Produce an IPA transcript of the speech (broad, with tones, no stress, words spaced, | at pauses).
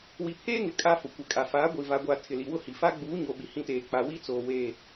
wi˨pʰeː˦ŋɪ˨ kʼaː˦fʊ˨ kʷɪ˨kʼa˨faː˨˦ ɡʷi˨va˨ ɡʷa˨ tʰɪ˨li˨wʊ˦hi˨ fa˦ɡ͡buː˨˦ ɲo˨ɓi˨hĩ˦˨teː˨ k͡pa˨wi˦t͡soː˨ we˦˨